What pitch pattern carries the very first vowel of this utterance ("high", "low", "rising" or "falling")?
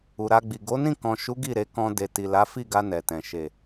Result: low